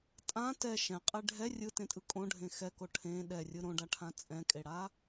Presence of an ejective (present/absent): present